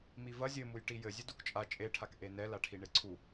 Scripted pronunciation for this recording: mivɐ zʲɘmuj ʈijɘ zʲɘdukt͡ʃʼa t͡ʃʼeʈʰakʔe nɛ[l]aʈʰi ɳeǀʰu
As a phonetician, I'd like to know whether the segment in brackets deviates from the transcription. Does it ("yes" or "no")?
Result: no